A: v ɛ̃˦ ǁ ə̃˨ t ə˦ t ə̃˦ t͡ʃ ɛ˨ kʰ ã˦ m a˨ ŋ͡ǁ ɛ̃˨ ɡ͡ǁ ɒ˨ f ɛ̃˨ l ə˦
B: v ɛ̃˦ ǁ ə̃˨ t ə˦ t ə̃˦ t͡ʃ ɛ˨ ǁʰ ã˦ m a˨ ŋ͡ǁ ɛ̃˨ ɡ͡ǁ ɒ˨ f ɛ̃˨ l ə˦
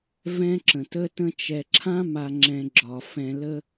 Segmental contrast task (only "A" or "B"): B